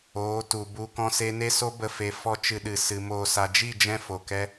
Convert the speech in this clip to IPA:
oː˨˦ t u˨ b u˧ k ɔ̃˦ s e˦ n e˦ s o˦ b ə˦ f e˨ f ɔ˦ t͡ʃ ɨ˧ ɗ ɨ˨ s ɨ˨ m oː˧ s a˧ d͡ʒ i˦˨ d͡ʒ ɛ̃˧ f o˨ k ɛ˦

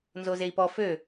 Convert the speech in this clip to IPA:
n z o z e i̯ p ɔ f ø

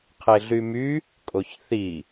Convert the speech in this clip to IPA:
qʰ e ɮ y m y | kʼ o ç θ i

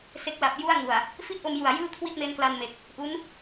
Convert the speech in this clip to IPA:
s e˦˥ k̚ l a˨˩ p̚ j u˥˩ a̯ ŋ u˨˩ a̯ | f i˥˩ t̚ ʔ o˧ m j u˨˩ a̯ j ɯː˥˩ kʰ w i˥˩ t̚ m e˦˥ n k l a˧ n m e˨˩ k̚ | ʔ u˦˥ n

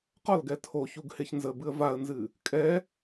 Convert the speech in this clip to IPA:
q ɒ l ɡ ɛ tʰ o ç u ɡ h e ç n z ə b ɨ ə̯ v a ə̯ n z ɨ | kʼ ɛ

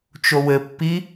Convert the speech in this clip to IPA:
t͡ʃ o w ɘ pː i

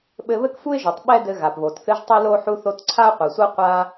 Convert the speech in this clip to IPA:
ɓ ɘ˧ β ɘ˥ k f u˥ ɪ̯ ʒ u˩ tˤ ɓ ɛ˥ d ɘ˧ ɣ a˩ p β o˩ t θ ɨ˧ ʒ tˤ ɘ˥ l o˥ ħ u˧ θ o˧ t ǀʰ a˥ ʊ̯ qʷ ɛ˩ sʷ ə˥ ʊ̯ qʷ a˧

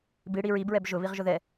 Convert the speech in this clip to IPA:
b i ɽ i ɹ i b ɹ ɛ b ʒ ʊ β i ʁ ʒ ʊ ð ɛ

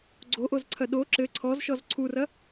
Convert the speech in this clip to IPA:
ɡ͡ǀ o ʔ o z ǀʰ ɐ ɗ o ǁ ɘ ǀʰ ɔ z ʃ ɔ z ǀʰ u r ɐ

